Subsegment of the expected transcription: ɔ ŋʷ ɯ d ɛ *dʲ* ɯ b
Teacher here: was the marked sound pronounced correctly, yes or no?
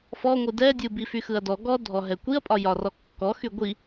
yes